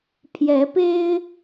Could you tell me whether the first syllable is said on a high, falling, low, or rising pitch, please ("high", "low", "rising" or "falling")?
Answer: rising